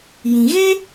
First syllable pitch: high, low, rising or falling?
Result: low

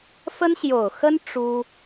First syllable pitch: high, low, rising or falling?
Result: high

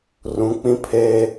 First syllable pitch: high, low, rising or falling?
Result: rising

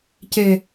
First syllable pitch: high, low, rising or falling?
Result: low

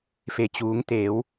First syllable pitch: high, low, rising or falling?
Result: low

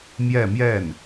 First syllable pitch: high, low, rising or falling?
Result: falling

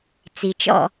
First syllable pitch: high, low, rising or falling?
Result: low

